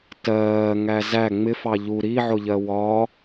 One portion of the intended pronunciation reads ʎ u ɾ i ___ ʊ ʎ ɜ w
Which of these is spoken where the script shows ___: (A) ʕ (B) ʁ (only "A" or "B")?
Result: A